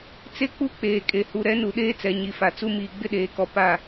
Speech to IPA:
t͡s e˦ k͡p u˦ k͡p eː˨ kʼ e˨ h u˨ ɾ ɛ˨˦ n u˨ ɗ eː˦ t͡s ɛ˨ ɲ i˨ f a˨ t͡s u˦ m iː˨ ɡ͡b ɪ˦ ɗ eː˨ k ɔ˨ p a˦˨

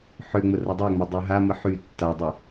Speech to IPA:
ħ ø ŋ͡m ə r ɐ dˤ ø ŋ͡m a dˤ ø ɦ a m ə ħ y tː a dˤ y

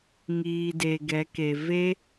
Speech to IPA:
ŋ iː˨ d e˨ ɡ ɛ˨˦ k e˨ v e˦

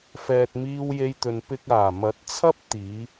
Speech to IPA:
f ɛː˨ t̚ m iː˧ w j e˧ j t̪ ɵ˨ n p ɪ˧ k̚ aː˨˩ m ɐ˨˥ t̚ t͡sʰ ɐ˥ p̚ t̪ iː˨˧

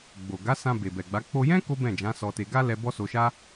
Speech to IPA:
ɡ͡b o˨ ɡ a˨˦ s ã˧ b e˨ b ɛ˨ ɡ͡b a˨˦ k͡p o˧ j ɛ̃˦ k o˦ b ɛ̃˦˨ d͡ʒ ã˨˦ s ɔ˧ t e˧ ɡ a˦ l ɛ˧ b ɔ˦ s o˧ ʃ a˦

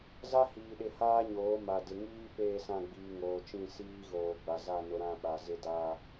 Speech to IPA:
z a˦ h iː˨ ɗ ɪ˨ h aː˦ ɲ oː˨˦ m a˨ d ɪ˨ ŋ iː˦ p eː˦˨ s ã˦˨ ɡ͡b iː˨ ŋ oː˨ t͡ʃ ĩ˦˨ s iː˦ ɣ oː˨ ɡ͡b a˨ z a˦˨ n ʊ˨ ɾ ã˦˨ ɓ a˨ z ɪ˦ d aː˦

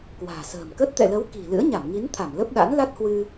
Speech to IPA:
k w a̤ː˨˩ s ə̤ː˨˩ m k ə˦˥ t̚ t̪ ɛ̰˧˨ l ə˨˦ w k i̤˨˩ l ɨ̰˧˥ ə̯ ɲ a˧˩ m ŋ i˨˦ n t̪ʰ a˧˩ m l ə˦˥ p̚ ɗ a̰˧˥ n l a˦˥ t̚ h w ɨ˧

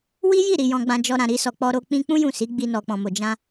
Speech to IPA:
w i˦ j i˦˨ ɾ i˨ j ɔ̃˧ ɡ͡b ã˧ d͡ʒ ɔ˧ ɾ ã˨ ɾ i˧ s ɔ˨ k͡p ɔ˧ ɾ o˧ k͡p ĩ˧ k͡p ũ˦ j ũ˦˨ s i˨˦ ɡ͡b i˧ n ɔ˨ k͡p ɔ̃˨ m o˨ d͡ʒ ã˧

